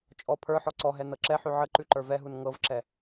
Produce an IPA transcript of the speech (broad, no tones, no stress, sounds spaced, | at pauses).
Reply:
t͡ʃʼ ɔ pʰ ə˞ ħ ɔ ǀ ɔ ɦ ɛ n ɤ ǁ ɛ ħ ʉ ʕ ə ǃ ʉ ǃ ə˞ v ɛ ɦ u n ŋ ɤ v ǁ ɛ